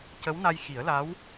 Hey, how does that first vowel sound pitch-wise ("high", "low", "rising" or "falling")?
rising